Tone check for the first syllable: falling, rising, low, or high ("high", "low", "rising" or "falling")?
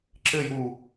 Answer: falling